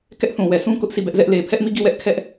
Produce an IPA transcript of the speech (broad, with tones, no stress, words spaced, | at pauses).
kɛ˦ʔθũ˨wɛ˨ sʰũ˦ kʊ˦ʔsʰi˦˨bɛ˦ʔzɛ˦ʔ le˨pʰɛ˦ʔmi˦˨ ɡi˦˨wɛ˦ʔ kʰɛ˦ʔ